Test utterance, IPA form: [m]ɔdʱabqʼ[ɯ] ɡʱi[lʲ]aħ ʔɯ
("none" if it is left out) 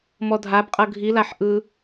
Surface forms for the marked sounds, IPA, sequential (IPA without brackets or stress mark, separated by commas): m, ɤ, l